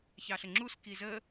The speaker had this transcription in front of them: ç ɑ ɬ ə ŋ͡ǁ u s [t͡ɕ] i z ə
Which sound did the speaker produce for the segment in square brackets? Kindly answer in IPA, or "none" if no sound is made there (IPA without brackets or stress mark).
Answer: k